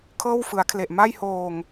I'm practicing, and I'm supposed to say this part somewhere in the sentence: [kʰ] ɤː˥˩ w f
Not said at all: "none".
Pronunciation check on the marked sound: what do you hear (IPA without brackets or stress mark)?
kʰ